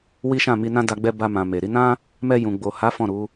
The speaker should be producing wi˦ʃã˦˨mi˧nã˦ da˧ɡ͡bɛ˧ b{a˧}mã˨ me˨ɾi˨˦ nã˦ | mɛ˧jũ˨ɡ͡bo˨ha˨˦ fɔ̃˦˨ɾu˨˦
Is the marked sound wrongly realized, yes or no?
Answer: no